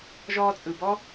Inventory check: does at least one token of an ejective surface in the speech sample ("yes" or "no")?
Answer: yes